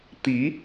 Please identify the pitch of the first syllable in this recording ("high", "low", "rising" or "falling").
rising